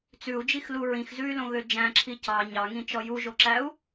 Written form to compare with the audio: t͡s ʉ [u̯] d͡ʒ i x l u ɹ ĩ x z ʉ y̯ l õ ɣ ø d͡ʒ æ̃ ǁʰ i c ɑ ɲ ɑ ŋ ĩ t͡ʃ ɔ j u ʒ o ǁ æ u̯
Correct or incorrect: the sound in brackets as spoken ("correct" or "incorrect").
correct